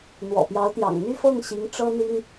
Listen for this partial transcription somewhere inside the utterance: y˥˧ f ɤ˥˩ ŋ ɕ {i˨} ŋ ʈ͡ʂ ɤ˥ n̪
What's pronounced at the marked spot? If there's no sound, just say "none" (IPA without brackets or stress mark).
i˧˥